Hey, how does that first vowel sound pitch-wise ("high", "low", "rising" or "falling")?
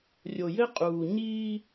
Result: low